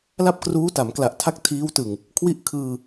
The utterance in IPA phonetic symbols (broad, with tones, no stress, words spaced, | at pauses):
la˥˩p̚kruː˦˥ta˩˦mkla˨˩ʔ tʰa˥˩k̚tʰiː˦˥w tɯ˨˩ŋ | kʰwi˥˩ʔ kʰɯː˧